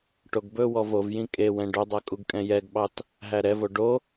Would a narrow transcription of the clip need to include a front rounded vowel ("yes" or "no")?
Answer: no